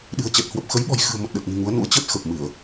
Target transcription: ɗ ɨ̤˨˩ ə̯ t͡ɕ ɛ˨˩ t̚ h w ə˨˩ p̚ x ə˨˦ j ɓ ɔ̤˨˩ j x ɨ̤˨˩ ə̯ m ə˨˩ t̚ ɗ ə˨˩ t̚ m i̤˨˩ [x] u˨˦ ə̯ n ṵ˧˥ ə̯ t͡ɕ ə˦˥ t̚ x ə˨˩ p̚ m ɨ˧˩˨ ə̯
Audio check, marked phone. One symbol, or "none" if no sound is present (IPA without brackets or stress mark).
ŋ